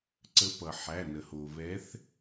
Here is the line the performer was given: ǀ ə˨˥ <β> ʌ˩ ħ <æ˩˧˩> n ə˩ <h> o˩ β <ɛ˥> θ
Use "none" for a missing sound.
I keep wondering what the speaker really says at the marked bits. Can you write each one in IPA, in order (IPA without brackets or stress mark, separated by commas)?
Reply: p, æ˩˧˩, h, ɛ˨˥